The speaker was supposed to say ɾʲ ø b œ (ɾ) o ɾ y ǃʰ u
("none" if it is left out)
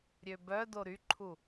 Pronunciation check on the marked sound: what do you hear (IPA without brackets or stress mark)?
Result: d